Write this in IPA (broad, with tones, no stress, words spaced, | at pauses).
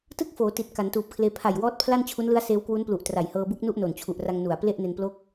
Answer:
tɯ˥˩k̚foː˩˦ ti˨˩t̚ ka˩˦ntuː˨˩p̚kʰleː˧ pʰa˨˩jwɔː˦˥t̚ pʰla˥˩nt͡ɕʰu˦˥nlɯ˦˥a̯ seː˦˥wkwu˦˥nplu˨˩ʔ tra˨˩jhɤː˧bu˦˥k̚nu˥˩ʔ no˨˩nt͡ɕʰu˨˩ʔra˧ŋ nu˨˩a̯ple˥˩ʔne˧n plo˥˩k̚